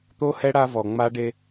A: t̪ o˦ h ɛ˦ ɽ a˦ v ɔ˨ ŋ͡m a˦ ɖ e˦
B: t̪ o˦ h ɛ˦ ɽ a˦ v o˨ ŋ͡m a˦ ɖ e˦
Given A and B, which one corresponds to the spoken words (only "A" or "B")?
A